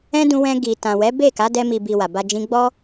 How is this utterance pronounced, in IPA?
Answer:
ɛ̃˦ d ũ˧ w ɛ̃˧ ɡ i˨ t ã˨ w ɛ˨˦ b e˦˨ k a˨˦ d ɛ˧ m i˨ b i˨ w a˨ b a˧ d͡ʒ ĩ˦ ɡ͡b ɔ˦

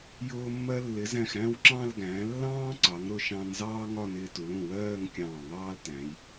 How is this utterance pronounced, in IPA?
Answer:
j ʊː˧ mː ɜ˧ lː ɪ˩˧ z æ̃˧˩ x ɾ æ̃˥˧ w ǁ ɑ̃˥˧ l ɡ æ̃ː˩˧ lː ɑ̃ː˥ ǀ ɑ˩˧ ŋ ɾ ʊ˧ ʃ ɑ̃˧ n z ɑː˥ ŋ ɒ˥˧ n ɪː˧ t u˩˧ l ũ˧˩ w ɜː˥˧ ŋ kʲ ɑ̃ː˧˩ ŋ ɑː˥ l t æ̃˩˧ j

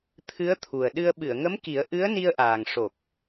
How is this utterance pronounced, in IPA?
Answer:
t̪ʰ ɨ˧˥ ə̯ t̪ʰ u˨˩ ə̯ ɗ ɨ˧ ə̯ ɓ ɨ˨˩˨ ə̯ ŋ ə˧˥ m k i˨˩˦ ə̯ ʔ ɨ˧˥ ə̯ n i˧ ə̯ ʔ aː˨˩ ŋ ʂ o˨˩ k̚

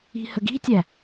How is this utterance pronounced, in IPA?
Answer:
i̤ h ə ɡ i̤ tʲ æ

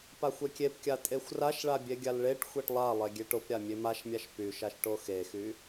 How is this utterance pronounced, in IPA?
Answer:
p a xʷ e kʲ e p kʲ a tʼ e xʷ r a ʃ ɭ a bʲ e ɡʲ a l ɭ e ʈ xʷ e ʈ lˠ a lˠ e ɡʲ e ʈ o p ɾʲ a mʲ e m a ʃ mʲ a ʃ p y ʃ a ʃ ʈ o x e x y

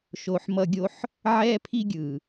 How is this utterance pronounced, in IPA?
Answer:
ʃ o˨ ħ m ʌ˧ ɡʲ o˦ ħ | ʕ ɛ˧ pʰ i˧ ɡʲ ɯ˨

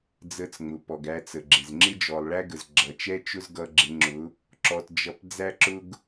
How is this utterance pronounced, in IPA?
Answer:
d͡z ə˧ t͡s ŋ͡m ʊ˨ p ɔ˨ ɡ æ˧ t͡s ə˨ ɡ͡ǁ ɪ˨ z ŋ͡ǁ ɪ˦ d͡ʒ ɔ˨ lˠ ɭ æ˦ ɡ ə˨ z ɡ͡ǁ ʌ˨ t͡ʃ ɛ˦ t͡ʃ ʊ˦ z ɡ ʌ˧ ɡ͡ǁ ɪ˨˦ ŋ͡ǁ ʊ˨˦ | ǁ ɔ˧ t d͡ʒ ʌ˧ p d͡z æ˦ ǁ ʊ˦ ɡ

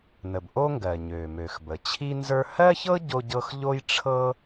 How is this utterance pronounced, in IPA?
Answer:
n ə˩ b ʔ o˥ ŋ ɡ ɜ˩ ɲ ø˩ m ø˩ x b ə˩ t͡ɕʰ i˥ n z ə˞˥ h ɜ˥ ç ɤ˥ ɟ o˥ ɟ ɤ˥ x ʎ o˥ j ʈ͡ʂʰ ɤ˥

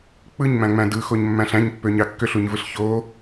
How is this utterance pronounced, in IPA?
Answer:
k͡p ɯ ɲ m æ̃ ŋ͡m æ̃ d ɯ x o ɲ mː æ̃ ɬ æ̃ ɲ pː ø ɲ ɑ kː ø ɬ u ɲ v ɯ ɬ ç o

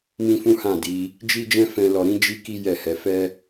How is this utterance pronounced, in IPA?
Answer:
m ĩ˦ f ũ˦ h ã˦˨ d i˨˦ | d͡ʒ i˦ d͡ʒ ɛ̃˦ f ɛ̃˧ l ɔ˧ ɾ ĩ˦ d͡ʒ i˦ k i˦ j ɛ˦˨ h ɛ˨˦ f ɛ˦

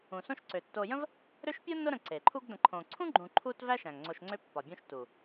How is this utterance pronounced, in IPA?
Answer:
ũ˩ s õ˦ ʃ ǀ ø˩ tː o˨ j ə̃˥ v | ɾ ø˦ ʃ pʲ ʊ˥ nː ʊ˦ ɾ ə̃˨ ǀ e˩ ǃʰ u˦ ɡ d ə̃˨ ǃʰ õ˨ ǀʰ ũ˥ ɡ͡ǃ ũ˨ ǃʰ u˦ t v æ˥ ʃ æ̃˩ ŋ ŋ͡ǀ o˨ ʃ ŋ͡ǀ ø˦ pː ɒ˩ bʲ õ˦ ʃ t u˩

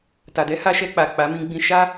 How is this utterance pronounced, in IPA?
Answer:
t a˨ d ɛ˨˦ h a˧ ʃ ɛ˧ k͡p a˨ k͡p a˨˦ m ĩ˧ ɡ͡b ĩ˧ ʃ a˦

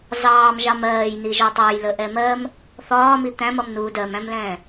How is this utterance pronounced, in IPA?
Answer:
z ɑː m ʒ ɑ m ɜː j n i ʒ ɒ tˤ ɑ j l ə ʔ ɛ m ɜ m | θ ɒː m i t̪ æ̃ m ʌ m n uː d ɜ m æ̃ m l ɛ̃ː

